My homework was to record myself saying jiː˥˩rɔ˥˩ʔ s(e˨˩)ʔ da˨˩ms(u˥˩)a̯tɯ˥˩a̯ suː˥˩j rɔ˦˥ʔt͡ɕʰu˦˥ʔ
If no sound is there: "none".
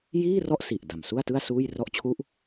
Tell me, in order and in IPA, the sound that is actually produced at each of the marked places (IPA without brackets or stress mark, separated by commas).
i˨˩, u˥˩